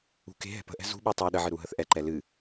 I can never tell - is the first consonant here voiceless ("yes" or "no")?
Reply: yes